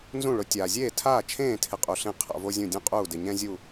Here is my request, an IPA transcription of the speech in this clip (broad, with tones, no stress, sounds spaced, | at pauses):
n z ũ˥˩ ɭ ʊ˩˥ tʲ aː˩ zʲ eː˥˩ tʰ aː˥˩ t͡ʃʰ ẽː˥˩ tʰ ɪ˧ qʼ u˩ ɬ ẽ˥˩ qʰ a̰˧ v o˥ zʲ ũ˥˩ dʲ ũ˥ qʼ uː˥˩ d ɪ˩ ɲ ɛ̃˥ zʲ u˥˩